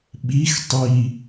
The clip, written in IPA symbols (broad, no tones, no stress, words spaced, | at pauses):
ɓix tˤi